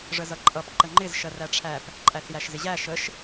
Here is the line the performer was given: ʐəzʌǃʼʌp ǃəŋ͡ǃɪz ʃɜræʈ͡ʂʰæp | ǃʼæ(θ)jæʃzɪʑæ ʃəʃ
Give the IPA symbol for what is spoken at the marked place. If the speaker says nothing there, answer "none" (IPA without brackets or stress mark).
θ